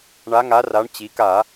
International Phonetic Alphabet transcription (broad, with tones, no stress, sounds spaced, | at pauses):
ɳ a˩˧ ŋ a˩˧ r a˩˧ ɳ t͡ɕ i˩˧ k a˧˩˧